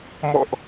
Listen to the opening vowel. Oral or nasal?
oral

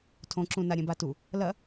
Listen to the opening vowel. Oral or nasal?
nasal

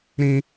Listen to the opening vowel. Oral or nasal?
nasal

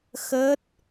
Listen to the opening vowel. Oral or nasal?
oral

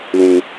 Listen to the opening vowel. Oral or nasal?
nasal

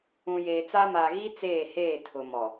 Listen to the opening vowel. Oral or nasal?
nasal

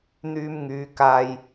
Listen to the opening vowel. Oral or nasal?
oral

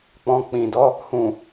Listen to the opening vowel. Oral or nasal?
nasal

